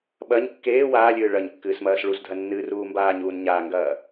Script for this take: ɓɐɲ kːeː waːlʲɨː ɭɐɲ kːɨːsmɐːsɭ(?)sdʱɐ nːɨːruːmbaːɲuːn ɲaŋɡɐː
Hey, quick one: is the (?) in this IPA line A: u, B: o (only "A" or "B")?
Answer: A